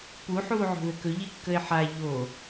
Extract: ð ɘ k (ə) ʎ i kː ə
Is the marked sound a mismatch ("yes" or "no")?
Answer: yes